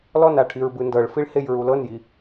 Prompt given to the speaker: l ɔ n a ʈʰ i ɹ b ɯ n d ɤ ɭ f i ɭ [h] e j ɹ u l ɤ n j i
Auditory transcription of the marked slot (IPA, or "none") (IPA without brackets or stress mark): h